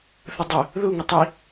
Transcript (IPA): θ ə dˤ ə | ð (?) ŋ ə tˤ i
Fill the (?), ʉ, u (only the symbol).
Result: u